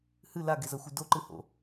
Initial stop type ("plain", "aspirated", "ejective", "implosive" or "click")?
plain